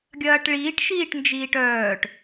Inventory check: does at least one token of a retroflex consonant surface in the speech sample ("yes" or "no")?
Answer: yes